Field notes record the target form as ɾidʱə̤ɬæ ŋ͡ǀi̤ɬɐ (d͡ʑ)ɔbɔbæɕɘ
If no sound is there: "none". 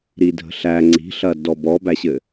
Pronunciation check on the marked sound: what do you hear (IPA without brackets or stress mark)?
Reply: d